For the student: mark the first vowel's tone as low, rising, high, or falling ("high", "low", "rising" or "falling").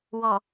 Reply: low